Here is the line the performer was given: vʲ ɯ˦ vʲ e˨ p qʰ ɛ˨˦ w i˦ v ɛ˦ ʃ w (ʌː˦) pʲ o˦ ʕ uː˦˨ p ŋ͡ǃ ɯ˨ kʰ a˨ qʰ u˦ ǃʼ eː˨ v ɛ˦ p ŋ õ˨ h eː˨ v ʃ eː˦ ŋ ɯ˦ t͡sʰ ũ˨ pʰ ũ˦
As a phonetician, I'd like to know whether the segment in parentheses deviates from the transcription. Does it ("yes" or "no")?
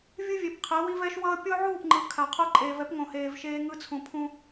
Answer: no